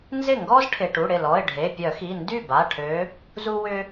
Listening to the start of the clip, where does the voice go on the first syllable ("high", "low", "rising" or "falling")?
falling